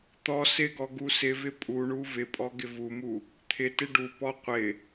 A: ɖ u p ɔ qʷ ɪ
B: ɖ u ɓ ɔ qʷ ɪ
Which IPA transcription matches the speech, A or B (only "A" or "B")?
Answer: A